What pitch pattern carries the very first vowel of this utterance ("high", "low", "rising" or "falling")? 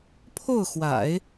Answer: falling